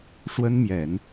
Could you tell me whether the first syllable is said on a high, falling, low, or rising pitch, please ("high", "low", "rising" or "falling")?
high